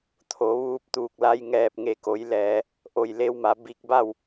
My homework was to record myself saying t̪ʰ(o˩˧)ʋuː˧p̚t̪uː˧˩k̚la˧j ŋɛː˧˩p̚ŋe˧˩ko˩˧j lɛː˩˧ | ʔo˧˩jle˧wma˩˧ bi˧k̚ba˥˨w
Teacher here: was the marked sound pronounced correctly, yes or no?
yes